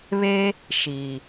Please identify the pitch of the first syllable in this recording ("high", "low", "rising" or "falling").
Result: high